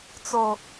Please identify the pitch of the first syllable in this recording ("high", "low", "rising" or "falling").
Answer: low